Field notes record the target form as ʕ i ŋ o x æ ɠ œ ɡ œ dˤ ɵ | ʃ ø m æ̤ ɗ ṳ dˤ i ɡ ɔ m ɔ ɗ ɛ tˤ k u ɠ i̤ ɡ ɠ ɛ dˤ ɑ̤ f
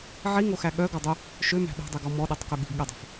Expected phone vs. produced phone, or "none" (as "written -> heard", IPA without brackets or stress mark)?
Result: none